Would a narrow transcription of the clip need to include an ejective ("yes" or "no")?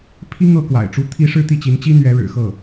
no